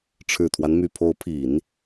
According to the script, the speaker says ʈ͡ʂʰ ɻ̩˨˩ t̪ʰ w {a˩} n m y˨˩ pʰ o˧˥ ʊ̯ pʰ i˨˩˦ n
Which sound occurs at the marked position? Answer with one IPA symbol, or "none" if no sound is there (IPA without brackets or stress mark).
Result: a˦